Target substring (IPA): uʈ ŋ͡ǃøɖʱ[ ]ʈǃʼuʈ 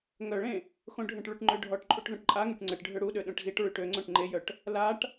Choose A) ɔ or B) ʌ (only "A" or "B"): A